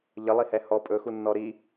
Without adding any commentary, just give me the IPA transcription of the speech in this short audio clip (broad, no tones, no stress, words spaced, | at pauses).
ʎəlˠihɛ hɔ pʼɵxunːɔ ɾi